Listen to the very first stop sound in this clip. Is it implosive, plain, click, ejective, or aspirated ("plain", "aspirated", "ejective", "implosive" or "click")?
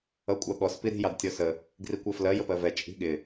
ejective